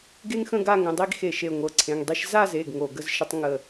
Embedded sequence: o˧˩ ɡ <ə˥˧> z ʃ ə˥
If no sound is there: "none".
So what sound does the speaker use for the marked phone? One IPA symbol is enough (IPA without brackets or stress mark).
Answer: ə˥˧